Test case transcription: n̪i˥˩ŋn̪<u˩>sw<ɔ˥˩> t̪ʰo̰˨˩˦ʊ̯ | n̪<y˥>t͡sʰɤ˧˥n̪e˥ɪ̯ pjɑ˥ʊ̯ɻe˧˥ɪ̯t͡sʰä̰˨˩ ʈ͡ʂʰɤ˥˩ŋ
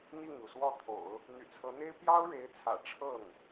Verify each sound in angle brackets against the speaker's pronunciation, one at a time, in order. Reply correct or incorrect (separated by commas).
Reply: correct, correct, incorrect